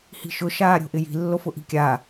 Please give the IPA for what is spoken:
h i̤ ʃ ʊ ʃ aː ɾʲ o̤ ʔ ɪ j i̤ lː o f ʊ ʔ i̤ kʲ aː

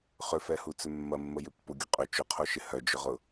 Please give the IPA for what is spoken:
χ ʏ f ɛ h u t͡s ʏ mː ɐ mː ə j ʏ pː ʊ ɡʲ ʊ qʼ ʏ t͡ʃ ʊ qʰ o ʃ ɪ h œ d͡ʒ ʏ ʁ ʊ

